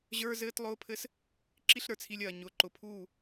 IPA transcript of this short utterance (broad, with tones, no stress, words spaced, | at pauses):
ʑə˞˦zɘː˦tlˠʊː˦pʰɘ˦s | ǁi˦ɬɾə˞˨t͡sʰi˧lʲ ɐː˨ ɲʊ˨ǃʊ˨pʰuː˦˨